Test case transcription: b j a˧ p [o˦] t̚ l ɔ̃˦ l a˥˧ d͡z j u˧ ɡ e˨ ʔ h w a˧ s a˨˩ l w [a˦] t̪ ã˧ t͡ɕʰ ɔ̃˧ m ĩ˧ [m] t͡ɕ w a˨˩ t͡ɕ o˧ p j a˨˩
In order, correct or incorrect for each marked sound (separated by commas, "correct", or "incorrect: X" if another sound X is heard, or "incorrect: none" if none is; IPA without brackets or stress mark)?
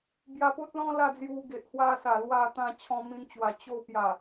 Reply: correct, incorrect: a˧, incorrect: n